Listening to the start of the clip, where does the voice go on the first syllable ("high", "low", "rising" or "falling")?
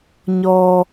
high